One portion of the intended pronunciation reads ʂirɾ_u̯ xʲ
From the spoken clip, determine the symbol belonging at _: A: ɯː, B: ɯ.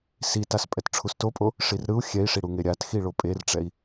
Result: B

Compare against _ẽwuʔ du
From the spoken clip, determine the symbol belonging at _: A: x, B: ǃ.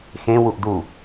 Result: A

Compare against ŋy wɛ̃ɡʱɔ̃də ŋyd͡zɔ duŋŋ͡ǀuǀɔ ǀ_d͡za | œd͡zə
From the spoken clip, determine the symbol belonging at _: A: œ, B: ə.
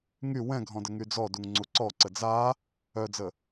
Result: B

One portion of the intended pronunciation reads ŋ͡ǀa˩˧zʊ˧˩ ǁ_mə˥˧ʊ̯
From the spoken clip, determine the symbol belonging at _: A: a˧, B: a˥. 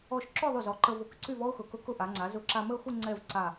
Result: A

